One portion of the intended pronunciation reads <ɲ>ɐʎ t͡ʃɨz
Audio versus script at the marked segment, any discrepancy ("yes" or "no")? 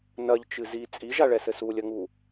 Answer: yes